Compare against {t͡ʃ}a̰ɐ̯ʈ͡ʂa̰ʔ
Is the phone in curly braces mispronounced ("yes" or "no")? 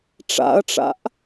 yes